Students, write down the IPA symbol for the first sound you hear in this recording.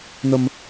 n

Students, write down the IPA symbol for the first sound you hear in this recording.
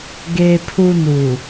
ɡ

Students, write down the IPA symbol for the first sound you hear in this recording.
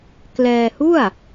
k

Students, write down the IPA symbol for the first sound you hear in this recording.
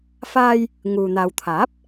f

